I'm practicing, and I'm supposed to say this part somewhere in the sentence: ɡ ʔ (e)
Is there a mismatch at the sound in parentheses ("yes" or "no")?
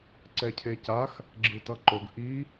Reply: yes